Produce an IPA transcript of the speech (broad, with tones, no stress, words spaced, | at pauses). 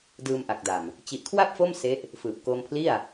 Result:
dɯː˧mʔa˨˩k̚da˨˩m | t͡ɕi˨˩ʔkʰwa˥˩p̚ fo˥˩mse˦˥ʔ | fɯː˨˩p̚koː˧mpʰli˥˩a̯